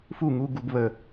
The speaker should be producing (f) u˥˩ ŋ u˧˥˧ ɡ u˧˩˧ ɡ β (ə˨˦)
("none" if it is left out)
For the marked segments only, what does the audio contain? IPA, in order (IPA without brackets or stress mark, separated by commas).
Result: f, ə˨˩